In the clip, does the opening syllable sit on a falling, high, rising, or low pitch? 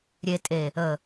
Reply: low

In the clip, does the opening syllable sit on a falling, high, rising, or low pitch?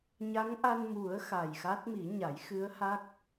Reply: rising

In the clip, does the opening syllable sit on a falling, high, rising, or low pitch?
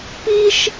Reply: high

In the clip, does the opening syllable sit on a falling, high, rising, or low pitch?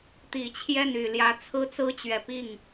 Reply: low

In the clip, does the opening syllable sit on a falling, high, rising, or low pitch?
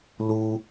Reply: high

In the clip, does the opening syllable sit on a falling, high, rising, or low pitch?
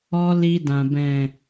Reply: high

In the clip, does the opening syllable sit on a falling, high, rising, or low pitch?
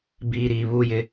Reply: low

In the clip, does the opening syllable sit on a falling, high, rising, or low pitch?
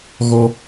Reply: high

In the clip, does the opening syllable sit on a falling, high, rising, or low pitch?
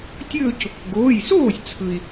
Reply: falling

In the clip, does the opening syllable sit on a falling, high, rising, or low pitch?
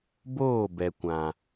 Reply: falling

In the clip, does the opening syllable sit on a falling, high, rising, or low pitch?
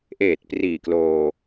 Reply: low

